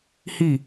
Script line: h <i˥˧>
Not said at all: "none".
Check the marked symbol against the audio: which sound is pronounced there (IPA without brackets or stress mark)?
i˥˧